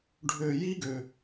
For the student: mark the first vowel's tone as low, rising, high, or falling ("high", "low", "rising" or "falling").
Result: falling